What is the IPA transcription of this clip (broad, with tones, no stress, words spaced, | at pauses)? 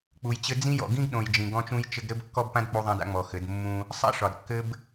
k͡pu˨jt͡ɕɘ˦ d͡zĩ˦jɔ̰˨ ɡĩ˦ɡɗõ˨j d͡ʒĩ˨ɡɔ̃˦t͡ʃũ˦jt͡ʃɘ˦ɡ ɾɘ˦bkːɔ˦bpã˦d k͡pu˦ðˤã˦da̰˦ ŋ͡mɔ˨xɘ˨˦d mːũ˦ | sˤa̰˦ʂɒ˨dkːɘ˦b